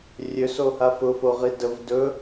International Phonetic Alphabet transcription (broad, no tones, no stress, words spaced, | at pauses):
rʲøsoha fʊfoʁi dəv dɵ